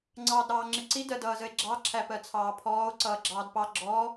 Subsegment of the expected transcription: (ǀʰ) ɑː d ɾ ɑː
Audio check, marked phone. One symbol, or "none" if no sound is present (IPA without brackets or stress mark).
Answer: ŋ͡ǀ